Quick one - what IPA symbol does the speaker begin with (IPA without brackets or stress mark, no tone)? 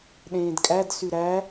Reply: ɗ